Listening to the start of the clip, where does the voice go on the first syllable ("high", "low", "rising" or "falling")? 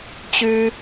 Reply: high